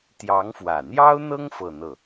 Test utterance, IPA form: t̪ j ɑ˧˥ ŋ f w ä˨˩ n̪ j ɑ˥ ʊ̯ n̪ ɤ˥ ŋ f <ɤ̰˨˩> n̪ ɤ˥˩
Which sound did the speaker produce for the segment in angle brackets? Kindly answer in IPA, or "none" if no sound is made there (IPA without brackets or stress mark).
ɤ˥˧